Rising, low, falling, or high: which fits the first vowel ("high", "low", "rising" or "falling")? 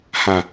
low